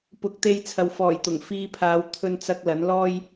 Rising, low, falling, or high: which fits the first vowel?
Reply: rising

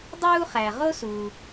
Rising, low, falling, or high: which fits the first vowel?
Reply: high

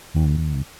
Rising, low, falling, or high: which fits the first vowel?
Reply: low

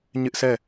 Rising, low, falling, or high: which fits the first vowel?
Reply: high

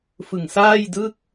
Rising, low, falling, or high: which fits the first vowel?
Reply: low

